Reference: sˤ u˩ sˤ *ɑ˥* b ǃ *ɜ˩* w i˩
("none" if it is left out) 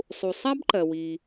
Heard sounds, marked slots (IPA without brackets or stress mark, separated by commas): a˥, ɜ˩